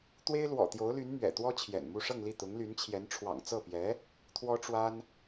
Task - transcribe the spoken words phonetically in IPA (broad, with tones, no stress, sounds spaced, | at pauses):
t̪ w e˥ ɪ̯ l w ɔ̰˨˩ t̪ j o˧˥ ʊ̯ l y˧˥ n m ɥ ɛ̰˨˩ t̪ w ɔ˥ t͡ɕʰ j ɛ̰˨˩ n m u˥˧ ʂ ɤ˥˧ ŋ l i˥˩ t̪ ʊ˧˥ ŋ l y˧˥ n t͡ɕʰ j ɛ˧˥ n ʈ͡ʂʰ w ɑ̰˨˩ ŋ t͡s ɤ˥˩ p j ɛ˧˥ | t̪ʰ w ɔ˥ ʈ͡ʂ w a˥ n